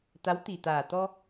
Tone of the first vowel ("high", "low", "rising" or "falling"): rising